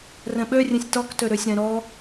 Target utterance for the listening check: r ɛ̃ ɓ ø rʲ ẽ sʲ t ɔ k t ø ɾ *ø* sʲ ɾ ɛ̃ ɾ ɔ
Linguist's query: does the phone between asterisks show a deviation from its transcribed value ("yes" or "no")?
no